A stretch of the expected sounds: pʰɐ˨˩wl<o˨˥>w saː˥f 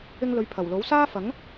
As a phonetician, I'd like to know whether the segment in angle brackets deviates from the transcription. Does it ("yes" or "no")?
no